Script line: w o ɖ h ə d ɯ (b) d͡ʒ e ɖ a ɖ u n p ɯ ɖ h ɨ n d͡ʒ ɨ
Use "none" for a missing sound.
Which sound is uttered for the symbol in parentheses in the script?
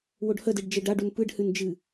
ɖ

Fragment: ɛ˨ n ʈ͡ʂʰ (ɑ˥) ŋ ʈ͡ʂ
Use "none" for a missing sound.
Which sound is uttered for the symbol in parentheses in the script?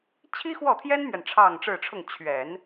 ɑ˥˧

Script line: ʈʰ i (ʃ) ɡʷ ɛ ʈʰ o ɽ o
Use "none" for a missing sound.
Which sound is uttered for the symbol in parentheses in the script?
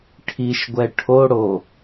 ʃ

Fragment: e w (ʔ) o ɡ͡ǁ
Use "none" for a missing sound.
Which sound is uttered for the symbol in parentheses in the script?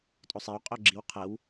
qʼ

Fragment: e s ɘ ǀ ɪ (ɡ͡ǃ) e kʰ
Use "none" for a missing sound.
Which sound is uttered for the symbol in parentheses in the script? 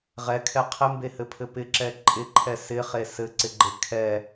ɡ͡ǃ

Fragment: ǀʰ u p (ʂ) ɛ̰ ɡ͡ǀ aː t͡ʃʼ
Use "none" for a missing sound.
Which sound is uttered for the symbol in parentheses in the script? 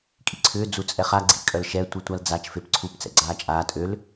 t͡s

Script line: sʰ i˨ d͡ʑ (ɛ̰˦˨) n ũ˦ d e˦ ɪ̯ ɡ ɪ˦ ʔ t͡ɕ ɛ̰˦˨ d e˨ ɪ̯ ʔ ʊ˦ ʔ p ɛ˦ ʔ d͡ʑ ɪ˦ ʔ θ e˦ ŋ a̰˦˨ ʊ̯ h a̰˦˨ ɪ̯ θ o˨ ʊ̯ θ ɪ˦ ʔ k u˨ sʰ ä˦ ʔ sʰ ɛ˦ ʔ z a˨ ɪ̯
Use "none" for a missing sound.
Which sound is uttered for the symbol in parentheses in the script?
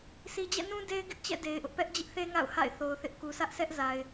ɛ̰˦˨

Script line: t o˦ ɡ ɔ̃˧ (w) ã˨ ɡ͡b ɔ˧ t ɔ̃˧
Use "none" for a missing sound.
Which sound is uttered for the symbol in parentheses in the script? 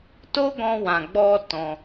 w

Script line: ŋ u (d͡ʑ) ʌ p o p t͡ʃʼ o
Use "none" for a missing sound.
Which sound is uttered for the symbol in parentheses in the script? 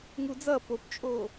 d͡z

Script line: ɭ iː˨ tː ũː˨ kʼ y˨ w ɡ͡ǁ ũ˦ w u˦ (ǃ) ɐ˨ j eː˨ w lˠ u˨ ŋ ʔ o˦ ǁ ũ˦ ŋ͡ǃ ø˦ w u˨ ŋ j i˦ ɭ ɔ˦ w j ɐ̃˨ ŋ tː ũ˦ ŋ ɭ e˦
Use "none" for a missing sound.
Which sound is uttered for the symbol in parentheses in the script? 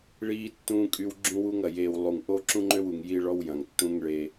ŋ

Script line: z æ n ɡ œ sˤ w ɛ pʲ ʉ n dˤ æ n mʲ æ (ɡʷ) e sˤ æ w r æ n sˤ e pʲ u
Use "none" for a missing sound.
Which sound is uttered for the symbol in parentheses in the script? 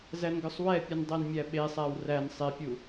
ɓ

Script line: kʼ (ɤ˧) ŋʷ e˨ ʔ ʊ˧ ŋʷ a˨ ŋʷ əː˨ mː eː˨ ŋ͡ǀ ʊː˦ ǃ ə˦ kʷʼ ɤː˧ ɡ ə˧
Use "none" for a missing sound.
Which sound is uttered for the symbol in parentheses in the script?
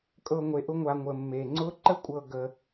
ɤ˧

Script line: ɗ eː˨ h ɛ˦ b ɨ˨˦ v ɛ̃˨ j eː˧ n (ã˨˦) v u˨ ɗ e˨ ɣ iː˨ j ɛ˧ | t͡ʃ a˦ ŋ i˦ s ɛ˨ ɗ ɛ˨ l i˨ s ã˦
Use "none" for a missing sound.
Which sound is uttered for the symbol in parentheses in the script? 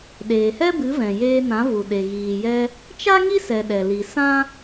ã˨˦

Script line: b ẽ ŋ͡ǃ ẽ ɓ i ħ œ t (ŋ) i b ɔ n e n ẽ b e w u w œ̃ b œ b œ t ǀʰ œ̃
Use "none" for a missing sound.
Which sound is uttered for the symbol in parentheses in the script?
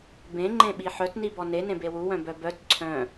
n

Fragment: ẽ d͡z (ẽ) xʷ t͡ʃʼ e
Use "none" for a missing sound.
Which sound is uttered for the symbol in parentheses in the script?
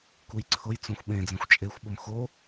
ẽ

